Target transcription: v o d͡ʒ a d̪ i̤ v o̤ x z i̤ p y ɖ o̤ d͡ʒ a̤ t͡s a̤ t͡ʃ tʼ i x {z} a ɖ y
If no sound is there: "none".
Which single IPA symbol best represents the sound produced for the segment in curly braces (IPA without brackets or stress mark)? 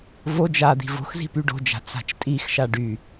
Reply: ʃ